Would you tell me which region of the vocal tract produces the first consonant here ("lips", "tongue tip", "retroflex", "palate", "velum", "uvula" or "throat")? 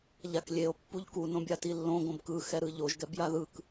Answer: palate